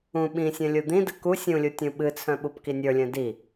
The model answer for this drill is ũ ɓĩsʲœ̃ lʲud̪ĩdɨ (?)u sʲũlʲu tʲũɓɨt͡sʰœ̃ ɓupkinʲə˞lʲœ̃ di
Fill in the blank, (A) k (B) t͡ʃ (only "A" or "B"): A